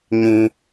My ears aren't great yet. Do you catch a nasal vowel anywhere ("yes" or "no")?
yes